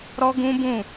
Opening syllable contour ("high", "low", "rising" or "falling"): high